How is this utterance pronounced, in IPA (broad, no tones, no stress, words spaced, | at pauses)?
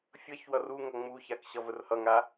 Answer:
fʲʌç wʌruŋʌ ŋ͡muçak ɕʌvərhʌŋa